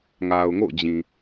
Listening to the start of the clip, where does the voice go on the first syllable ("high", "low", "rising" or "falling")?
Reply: low